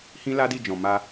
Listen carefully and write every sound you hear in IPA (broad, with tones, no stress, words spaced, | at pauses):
hĩ˦la˦di˦˨ d͡ʒɔ̃˨ma˧